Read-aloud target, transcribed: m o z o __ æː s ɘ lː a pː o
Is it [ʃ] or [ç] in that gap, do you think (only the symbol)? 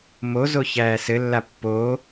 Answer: ç